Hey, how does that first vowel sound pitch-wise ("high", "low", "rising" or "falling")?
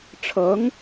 rising